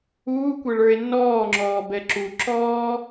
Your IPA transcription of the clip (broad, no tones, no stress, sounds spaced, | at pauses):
uː kʷ ɛ ɭ ə˞ e̯ n ɔː ŋ͡ǁ ɔː b ɛ ǁ u ǁ ɔː